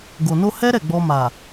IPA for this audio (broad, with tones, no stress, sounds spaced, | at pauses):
ɡ o˨ n o˧ h ɛ˦ ɾ ɛ˦˨ ɡ͡b ɔ˧ m a˨